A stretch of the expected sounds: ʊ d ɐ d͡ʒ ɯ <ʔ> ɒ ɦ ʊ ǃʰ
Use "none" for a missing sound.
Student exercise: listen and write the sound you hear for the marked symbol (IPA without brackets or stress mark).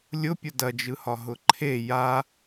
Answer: h